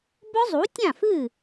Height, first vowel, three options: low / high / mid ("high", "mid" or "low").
mid